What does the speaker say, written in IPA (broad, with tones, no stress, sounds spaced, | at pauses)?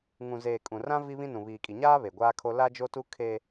ŋ ũ˨ z eː˨ kʼ ũ˨ r ã˦ v i˦ β ĩ˦ n ũ˨ β iː˨ kʼ i˨ ɲ aː˦ β e˨ ɡʷ aː˦ kʰ o˦ l a˦ d͡ʒ o˦ t u˦ kʰ e˦